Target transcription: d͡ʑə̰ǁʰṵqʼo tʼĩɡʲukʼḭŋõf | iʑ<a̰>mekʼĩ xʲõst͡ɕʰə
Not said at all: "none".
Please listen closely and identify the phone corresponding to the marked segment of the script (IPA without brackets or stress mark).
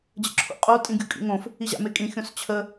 a̰